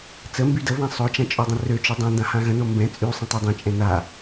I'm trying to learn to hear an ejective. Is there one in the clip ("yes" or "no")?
yes